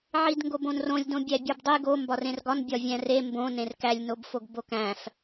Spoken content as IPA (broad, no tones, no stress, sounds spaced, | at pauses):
ʕ i d ŋ ɡ o b õ n r õ lʲ d õ bʲ æ bʲ ɒ b dˤ i ɡ o m b ɒ r ẽ r ɡ ɒ n bʲ ɒ vʲ æ̃ r e m b õ n ẽ r k æ lʲ n o b f o ɡ b o k æ̃ f